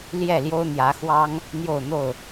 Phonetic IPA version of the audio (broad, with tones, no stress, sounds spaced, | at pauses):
l j ɛ˥˨ l j o˦ ʊ̯ n̪ j ä˨˦ x w ɑ˦ ŋ | n̪ j o˥˨ ʊ̯ n̪ o˥˨ ʊ̯